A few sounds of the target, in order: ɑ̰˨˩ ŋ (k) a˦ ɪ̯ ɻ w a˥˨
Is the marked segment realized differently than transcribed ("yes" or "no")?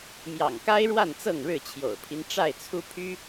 no